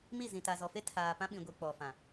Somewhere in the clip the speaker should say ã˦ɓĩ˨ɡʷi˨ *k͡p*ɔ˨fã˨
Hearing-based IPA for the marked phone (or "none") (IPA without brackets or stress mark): k͡p